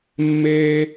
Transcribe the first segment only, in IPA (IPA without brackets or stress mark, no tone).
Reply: mː